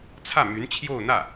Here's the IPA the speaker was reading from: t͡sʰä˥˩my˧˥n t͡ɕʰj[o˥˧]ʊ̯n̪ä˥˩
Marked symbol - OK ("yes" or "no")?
yes